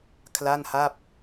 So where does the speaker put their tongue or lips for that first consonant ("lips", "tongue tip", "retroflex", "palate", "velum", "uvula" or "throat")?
velum